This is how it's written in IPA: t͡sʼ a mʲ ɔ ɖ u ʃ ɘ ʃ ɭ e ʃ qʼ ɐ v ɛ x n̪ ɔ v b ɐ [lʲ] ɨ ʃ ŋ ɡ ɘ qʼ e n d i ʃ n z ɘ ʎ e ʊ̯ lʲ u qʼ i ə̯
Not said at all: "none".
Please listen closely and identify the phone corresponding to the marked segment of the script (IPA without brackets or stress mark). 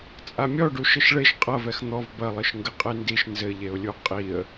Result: lˠ